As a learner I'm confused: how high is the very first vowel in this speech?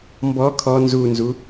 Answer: mid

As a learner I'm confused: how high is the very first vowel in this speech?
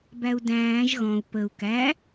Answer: low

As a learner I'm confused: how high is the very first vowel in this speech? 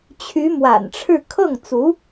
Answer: high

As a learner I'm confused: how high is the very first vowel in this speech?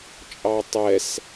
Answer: low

